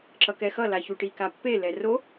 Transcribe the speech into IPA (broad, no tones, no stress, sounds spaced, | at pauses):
ǁ ʌ k ɛ x ʌ l a ç u ʈ i k a pː e l ɛ r o